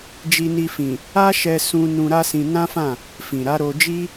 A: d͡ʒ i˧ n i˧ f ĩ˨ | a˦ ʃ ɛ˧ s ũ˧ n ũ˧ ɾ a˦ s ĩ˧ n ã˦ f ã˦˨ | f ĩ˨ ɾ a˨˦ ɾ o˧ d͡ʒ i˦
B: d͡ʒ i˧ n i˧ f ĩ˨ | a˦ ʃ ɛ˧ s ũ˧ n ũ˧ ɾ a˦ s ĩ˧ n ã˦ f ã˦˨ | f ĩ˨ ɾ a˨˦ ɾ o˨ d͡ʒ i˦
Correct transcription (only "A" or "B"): A